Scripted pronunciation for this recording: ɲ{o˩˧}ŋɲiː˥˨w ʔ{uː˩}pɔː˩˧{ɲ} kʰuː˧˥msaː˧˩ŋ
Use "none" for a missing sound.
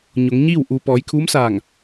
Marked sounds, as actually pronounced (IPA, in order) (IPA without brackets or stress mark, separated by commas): o˩˧, uː˩, j